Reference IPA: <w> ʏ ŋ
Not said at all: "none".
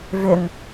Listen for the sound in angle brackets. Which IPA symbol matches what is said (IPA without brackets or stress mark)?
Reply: v